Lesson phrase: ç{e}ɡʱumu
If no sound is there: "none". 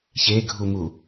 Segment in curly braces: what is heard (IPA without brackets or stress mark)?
e